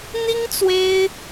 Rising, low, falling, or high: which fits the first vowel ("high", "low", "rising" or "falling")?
high